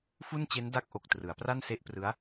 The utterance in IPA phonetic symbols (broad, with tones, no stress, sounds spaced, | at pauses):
f u˥˩ n t͡ɕ e˦˥ n d a˥˩ k̚ ʔ o˨˩ k̚ t r ɯ˩˦ a̯ p r a˥˩ n s e˦˥ ʔ p r ɯ˦˥ a̯